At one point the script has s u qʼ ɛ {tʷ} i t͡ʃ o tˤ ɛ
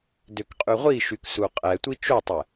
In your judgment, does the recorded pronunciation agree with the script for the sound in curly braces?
yes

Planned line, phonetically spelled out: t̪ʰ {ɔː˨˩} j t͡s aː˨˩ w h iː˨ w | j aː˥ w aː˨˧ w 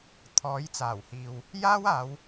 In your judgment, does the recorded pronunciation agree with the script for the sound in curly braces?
no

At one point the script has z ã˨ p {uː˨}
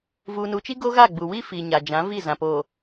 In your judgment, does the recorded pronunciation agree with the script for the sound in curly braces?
no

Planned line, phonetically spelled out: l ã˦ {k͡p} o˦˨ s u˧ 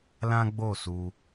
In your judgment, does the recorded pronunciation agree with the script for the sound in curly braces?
no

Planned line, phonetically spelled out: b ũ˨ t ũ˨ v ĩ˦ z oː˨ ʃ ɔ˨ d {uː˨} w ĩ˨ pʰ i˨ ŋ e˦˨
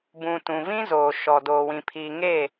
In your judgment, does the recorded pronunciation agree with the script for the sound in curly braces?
no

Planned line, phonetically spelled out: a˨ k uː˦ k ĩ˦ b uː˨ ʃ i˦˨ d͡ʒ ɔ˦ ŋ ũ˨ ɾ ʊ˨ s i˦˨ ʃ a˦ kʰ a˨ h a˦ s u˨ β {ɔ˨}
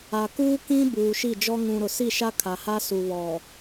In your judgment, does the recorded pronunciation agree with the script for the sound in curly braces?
yes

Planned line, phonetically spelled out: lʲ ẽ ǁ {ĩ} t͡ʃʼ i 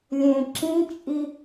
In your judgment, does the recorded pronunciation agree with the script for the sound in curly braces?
yes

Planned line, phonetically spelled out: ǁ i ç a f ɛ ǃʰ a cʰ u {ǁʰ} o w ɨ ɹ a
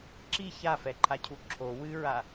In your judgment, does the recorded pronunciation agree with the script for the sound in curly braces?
yes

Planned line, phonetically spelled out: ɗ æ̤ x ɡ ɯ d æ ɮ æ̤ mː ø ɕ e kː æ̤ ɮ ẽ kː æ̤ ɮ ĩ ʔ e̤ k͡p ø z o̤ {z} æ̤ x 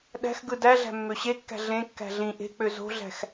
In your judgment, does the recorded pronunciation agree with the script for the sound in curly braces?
no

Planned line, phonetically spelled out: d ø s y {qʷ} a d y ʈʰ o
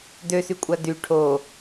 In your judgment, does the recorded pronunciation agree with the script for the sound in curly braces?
no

